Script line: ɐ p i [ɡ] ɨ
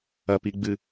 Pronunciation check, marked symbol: incorrect: ɡ͡b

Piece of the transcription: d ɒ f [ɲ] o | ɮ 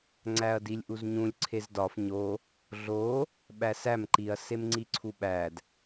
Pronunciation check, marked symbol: correct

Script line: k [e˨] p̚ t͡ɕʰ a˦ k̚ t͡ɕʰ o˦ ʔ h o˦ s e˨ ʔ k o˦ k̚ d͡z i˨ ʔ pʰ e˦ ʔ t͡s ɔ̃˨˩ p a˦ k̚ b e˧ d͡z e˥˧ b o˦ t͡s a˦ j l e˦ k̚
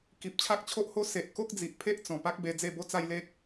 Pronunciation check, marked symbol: incorrect: i˨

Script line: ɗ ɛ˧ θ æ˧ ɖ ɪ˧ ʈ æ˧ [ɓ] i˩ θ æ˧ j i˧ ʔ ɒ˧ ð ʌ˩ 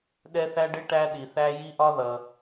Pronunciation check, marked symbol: incorrect: ɗ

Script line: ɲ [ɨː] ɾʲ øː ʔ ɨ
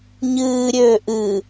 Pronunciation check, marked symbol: correct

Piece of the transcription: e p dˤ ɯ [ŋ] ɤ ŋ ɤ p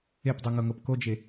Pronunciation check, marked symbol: correct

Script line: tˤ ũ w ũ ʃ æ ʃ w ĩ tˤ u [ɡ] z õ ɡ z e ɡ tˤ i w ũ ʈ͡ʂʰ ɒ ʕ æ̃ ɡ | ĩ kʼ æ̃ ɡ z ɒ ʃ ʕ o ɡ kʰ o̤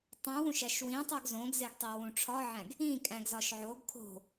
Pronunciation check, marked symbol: correct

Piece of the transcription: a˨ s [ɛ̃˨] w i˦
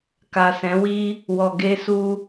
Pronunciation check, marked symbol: incorrect: ɛ̃˨˦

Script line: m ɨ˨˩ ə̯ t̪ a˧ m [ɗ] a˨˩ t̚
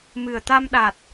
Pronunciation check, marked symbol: correct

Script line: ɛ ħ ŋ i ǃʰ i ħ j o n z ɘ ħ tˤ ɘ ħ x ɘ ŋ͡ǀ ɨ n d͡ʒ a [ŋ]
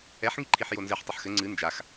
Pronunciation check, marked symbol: incorrect: x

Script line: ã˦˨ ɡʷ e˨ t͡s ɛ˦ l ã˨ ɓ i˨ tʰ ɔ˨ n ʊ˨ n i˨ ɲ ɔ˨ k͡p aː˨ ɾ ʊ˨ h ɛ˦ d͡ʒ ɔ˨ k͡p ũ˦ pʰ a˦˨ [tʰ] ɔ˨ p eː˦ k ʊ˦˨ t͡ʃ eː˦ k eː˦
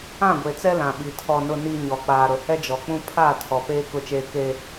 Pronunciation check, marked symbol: correct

